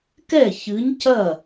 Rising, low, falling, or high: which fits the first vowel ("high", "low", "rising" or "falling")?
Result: falling